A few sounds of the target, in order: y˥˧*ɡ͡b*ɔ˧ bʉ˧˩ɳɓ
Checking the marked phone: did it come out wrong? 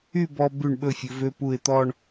yes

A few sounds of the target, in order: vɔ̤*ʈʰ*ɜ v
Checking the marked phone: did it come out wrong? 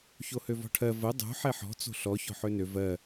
no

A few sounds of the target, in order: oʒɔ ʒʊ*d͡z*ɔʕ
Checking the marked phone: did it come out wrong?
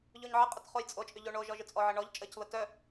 yes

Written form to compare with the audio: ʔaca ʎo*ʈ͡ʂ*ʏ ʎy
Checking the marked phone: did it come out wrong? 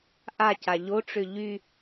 no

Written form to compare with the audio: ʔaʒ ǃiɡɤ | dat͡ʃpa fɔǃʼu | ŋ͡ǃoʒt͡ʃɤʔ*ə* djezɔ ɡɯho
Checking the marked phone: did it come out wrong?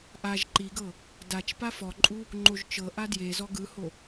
yes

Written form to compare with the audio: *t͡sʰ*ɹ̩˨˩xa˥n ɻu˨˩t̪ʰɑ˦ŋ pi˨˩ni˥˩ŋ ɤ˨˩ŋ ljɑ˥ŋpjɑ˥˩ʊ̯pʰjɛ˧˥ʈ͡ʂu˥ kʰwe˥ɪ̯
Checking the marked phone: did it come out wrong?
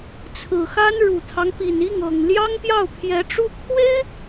no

